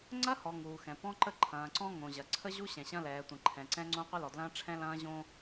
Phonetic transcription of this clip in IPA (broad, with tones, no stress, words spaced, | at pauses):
ŋ͡ǀɐ˦hɔ˨ ŋuː˨xɛ̃˨pɔ̃˦ǃə˦ ǃʰɐ̃ː˨ǀɔ̃˦ ŋõ˨ʑɐ˨ ǀʰə˦ʑu˦ ɕɛ̃˨ɕɐ̃˦lɛː˨tʷə̃˨ ǃʰɛ̃˨ǀɛ̃˦ŋ͡ǀõ˦ qʷə˦lɔ˨dlɐ̃ː˦ ʈ͡ʂʰɛ̃˦lɐ̃ː˦ ʑõ˦